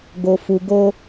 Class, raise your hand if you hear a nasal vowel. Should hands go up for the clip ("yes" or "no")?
no